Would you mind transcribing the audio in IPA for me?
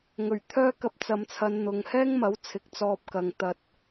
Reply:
ŋ ɵ˨˩ ɥ t̪ʰ œː˥ k ɐ˧ p̚ t͡s ɐ˨˧ m t͡sʰ ɐ˨˧ n n̪ ʊ˨˧ ŋ h ɛː˥ ŋ m ɐ˨˥ w t͡sʰ ɪ˨˥ k̚ t͡s ɔː˧ p̚ k ɐ˨ ŋ t̪ ɐ˧ t̚

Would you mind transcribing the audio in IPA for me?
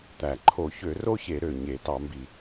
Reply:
t̪ æ˨˩ ǃʰ o˧˩˧ ç ø˧˩˧ r o˥ ç e˧˩˧ ɾ ø˨˩ ɲ e˧˩˧ t ɑ˧˩˧ m b i˨˩

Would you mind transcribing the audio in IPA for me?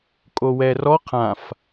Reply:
kʼ o w ɛ r ɔ qʰ ã f

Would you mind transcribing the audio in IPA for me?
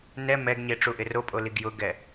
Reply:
n ɛ m ɛ ɡ ɲ e ʈ͡ʂ u ʔ ɪ r o pʼ o l i ɡ j ʊ ɡ ɛ

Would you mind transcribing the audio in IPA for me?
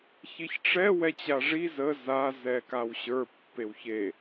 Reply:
ç i ç ʈ͡ʂ ɛ w ɛ t͡ɕ a ʐ i z ə z a z ɛ k a w ɕ ə˞ pː e w ç e

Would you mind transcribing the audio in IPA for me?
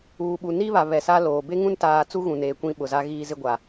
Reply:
uː˨ ɓ u˨ n i˦ β a˨ β ɛ˨ s a˦ l oː˨ b e˦ ŋ ũ˦ n t aː˨ t͡s u˦ ɣ ũ˨ n eː˨ kʷ ĩ˦ ɓ ʊ˨ z a˦ ɣ iː˦ z ɪ˦ ɡʷ a˨

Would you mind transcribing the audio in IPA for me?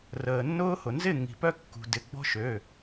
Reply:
r əː˩ nː ʊː˦ h ʊ˩ n z ɪ˥˨ ŋ i̤˩ p œ˦ kː ṳ˩ d ɪ˩˧˩ ɡ͡b ɔ̤˦ ʃ ø˩˧˩

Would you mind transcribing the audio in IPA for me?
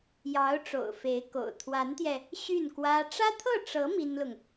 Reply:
j ɑ˧˥ ʊ̯ ʈ͡ʂ o̰˨˩ ʊ̯ f e˧˥ ɪ̯ k o̰˨˩ ʊ̯ t̪ʰ w a˧˥ n t̪ j ɛ˧ | ɕ y˥˩ n k w ä˥ ʈ͡ʂ ä˥ t̪ʰ ɤ˥˩ ʈ͡ʂ ɤ˧˥ m i˥ n l ʊ˨ ŋ

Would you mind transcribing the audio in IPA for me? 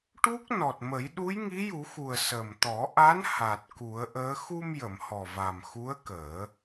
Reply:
ʈ u˦˥ k̚ n ɔ˨˩ t̚ m ə˨˩˦ j ɗ u˧˥ j ŋ i˧˥ j u˨˩˦ x u˨˩ ə̯ s ə˨˩ m t̪ ɔ˨˩˦ ʔ a˧˥ n h a˨˩ t̚ k u˨˩˦ ə̯ ʔ əː˧˥ x u˧ m j ə˨˩˨ m h ɔ˨˩ v a˨˩ m x u˧˥ ə̯ k əː˨˩˦

